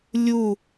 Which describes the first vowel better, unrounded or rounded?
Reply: rounded